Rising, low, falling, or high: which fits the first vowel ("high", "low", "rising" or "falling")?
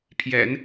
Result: low